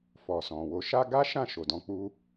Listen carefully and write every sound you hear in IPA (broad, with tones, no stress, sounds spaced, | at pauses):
f ɔ˨ s ɔ̃˨ w o˧ ʃ a˦ ɡ a˦ ʃ ã˦˨ ʃ o˨ d ɔ̃˧ k͡p u˧